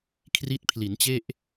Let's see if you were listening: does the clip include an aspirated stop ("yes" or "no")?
yes